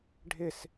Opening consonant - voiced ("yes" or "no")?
yes